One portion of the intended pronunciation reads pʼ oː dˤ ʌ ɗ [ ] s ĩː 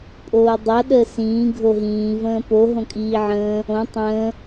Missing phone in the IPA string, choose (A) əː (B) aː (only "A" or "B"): A